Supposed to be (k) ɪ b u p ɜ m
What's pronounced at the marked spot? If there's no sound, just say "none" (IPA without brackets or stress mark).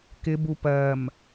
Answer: k